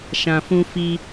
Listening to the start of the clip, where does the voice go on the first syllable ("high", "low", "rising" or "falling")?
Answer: low